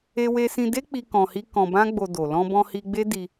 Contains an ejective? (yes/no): no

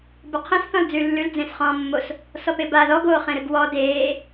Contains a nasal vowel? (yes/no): yes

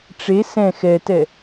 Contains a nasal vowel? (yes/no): yes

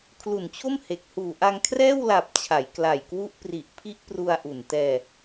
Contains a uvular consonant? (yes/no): no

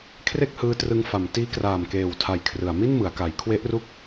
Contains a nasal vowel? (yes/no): no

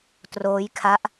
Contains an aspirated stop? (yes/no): yes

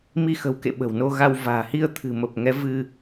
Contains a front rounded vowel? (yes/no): no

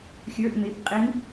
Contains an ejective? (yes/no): yes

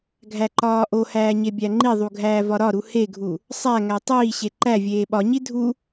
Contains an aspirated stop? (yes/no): no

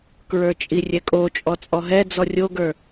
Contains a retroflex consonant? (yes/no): no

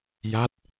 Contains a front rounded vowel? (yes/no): no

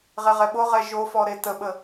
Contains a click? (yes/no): no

